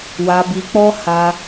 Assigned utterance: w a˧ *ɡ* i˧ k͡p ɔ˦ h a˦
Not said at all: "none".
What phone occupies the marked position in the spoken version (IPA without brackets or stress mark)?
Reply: b